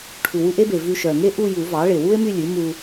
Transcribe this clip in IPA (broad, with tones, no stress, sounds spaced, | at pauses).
ʈʰ u˨˩ w u˥˧ ʔ e˥ b e˨˩ v ʉ˧ ʃ œ˨˩ ŋ e˥ ʔ u˥˧ j u˨˩˦ v ɑ˩˥ ɭ e˨˩ w u˥ e̯ m y˥˧ lʲ ʉ˩˥ m u˧